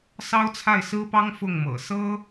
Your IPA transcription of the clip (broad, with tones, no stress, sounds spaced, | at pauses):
s ɑ˥ ʊ̯ t͡sʰ a˥˩ ɪ̯ s ɹ̩˥ p ɑ˥ ŋ f ʊ˥˩ ŋ m ɤ̰˨˩ s ɤ˥